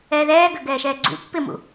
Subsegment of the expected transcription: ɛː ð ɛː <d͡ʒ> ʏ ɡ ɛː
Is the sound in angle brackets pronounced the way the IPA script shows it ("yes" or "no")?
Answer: no